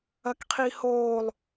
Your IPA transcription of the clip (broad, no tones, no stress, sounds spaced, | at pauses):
ɐ k qʰ i h oː lˠ